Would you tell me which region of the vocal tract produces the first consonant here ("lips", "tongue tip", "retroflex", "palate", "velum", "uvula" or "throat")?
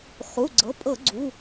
uvula